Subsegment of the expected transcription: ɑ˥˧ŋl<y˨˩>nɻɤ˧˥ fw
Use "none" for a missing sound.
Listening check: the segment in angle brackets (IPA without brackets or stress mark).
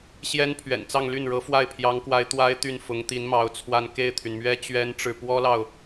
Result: y˥˩